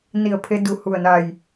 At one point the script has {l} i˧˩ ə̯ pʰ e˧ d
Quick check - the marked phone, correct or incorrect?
incorrect: n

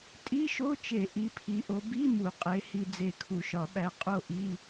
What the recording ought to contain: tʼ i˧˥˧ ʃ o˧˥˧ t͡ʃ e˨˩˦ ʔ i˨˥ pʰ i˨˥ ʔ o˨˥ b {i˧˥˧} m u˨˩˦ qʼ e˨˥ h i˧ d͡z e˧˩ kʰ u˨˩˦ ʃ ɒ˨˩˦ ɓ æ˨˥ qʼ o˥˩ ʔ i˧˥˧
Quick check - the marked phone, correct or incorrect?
correct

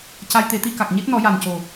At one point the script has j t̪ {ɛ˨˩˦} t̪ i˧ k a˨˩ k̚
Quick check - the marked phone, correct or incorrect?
incorrect: e˨˩˦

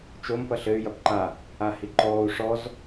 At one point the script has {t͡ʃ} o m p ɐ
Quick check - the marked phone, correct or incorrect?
correct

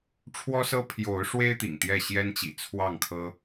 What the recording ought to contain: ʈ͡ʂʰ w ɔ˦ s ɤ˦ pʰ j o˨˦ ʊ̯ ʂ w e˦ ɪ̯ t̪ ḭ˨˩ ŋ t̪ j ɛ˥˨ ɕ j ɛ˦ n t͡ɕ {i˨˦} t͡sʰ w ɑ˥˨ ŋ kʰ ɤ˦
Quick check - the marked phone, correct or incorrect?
incorrect: ḭ˨˩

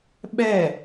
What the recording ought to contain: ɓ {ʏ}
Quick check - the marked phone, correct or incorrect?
incorrect: ɛ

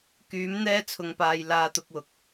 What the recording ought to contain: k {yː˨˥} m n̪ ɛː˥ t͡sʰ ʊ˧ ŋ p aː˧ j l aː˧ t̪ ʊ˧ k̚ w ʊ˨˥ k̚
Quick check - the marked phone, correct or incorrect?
incorrect: yː˨˧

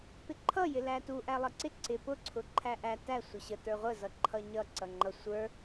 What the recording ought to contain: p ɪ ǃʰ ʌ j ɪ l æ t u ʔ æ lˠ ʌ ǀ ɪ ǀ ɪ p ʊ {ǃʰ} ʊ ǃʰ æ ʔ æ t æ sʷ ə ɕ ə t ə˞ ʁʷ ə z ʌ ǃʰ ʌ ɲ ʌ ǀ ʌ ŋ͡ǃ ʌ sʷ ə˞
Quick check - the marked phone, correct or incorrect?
incorrect: ǀʰ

